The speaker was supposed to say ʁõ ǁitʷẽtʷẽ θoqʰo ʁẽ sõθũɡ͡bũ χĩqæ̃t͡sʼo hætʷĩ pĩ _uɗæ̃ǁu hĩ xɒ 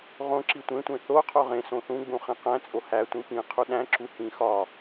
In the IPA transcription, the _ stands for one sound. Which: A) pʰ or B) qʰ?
B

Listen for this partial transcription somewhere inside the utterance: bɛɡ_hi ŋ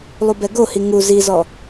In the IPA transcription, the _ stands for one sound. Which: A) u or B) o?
B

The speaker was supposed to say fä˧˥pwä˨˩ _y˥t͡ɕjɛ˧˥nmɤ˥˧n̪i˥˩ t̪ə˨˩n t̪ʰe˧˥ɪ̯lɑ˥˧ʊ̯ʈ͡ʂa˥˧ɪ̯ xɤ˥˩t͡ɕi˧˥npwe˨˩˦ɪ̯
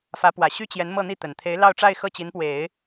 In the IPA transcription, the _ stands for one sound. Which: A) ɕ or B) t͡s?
A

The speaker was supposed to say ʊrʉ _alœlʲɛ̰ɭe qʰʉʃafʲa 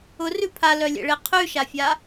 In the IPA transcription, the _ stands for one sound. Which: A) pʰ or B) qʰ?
A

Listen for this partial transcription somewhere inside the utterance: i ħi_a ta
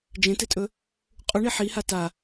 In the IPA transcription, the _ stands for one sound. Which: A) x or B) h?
B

